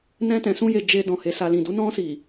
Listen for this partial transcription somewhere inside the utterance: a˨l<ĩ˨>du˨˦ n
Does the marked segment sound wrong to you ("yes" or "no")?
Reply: no